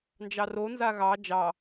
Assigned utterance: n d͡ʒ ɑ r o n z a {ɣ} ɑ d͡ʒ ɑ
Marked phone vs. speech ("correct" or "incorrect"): correct